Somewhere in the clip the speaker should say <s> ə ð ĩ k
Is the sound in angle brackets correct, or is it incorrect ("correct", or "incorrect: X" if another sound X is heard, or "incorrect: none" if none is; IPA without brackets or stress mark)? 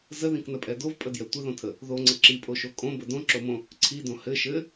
incorrect: z